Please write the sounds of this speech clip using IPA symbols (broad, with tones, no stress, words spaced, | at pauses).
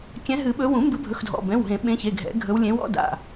kʲɛ̃˨˦ɦɨ˨˩˦ɓɵ˨˦ wũ˨˩˦ mbɨ˨˦bʱɵ˩˧˩xdʱɔ̰˩˧˩ bɛ̃˩˧˩wɦẽ˨˩˦ ɓẽ˨˦çe˩˧˩ɡʱɛ̰˨˩˦ɡʱɵ˨˦w lʲẽ˨˦w ɔ̰˨˦da̰˩˧˩